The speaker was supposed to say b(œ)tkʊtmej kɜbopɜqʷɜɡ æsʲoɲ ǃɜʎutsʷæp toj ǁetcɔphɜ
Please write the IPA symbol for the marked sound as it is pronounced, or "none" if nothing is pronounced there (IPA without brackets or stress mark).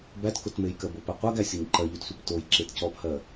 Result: æ